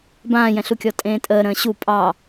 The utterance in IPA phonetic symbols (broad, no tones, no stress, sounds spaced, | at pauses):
b ãː j ɛ̃ ɬ u kʲ ɔ tʼ ẽː tʼ əː ɾ ə̃ː ɕ u pʼ ɑ